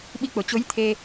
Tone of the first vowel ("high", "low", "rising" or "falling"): rising